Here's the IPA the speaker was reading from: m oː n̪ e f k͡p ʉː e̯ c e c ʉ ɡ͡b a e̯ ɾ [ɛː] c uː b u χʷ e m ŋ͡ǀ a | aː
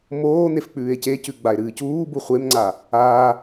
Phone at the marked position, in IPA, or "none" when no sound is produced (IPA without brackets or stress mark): ɨː